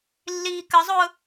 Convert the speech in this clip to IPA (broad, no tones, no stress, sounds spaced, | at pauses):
lː iː k ə zˤ ʊː